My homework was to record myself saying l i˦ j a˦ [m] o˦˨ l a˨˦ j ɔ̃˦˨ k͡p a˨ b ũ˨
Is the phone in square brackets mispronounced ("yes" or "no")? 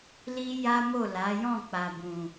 no